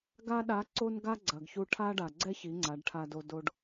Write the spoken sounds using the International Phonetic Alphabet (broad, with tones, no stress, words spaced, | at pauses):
ɡa˥ɗa˧˥ǀo˥nɡa˥ ɡ͡ǀɐ˩ɡçu˧ʈʰa˥ɖa˩ ɡ͡ǀɛ˥çi˩˧ ŋ͡ǀa˩˧ɖʈʰa˧do˧ do˧ɖ